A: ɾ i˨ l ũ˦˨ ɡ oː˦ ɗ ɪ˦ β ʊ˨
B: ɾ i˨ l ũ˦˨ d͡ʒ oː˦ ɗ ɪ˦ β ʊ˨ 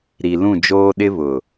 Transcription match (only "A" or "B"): B